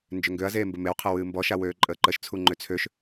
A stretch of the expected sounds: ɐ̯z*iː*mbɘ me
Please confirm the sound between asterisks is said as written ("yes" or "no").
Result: no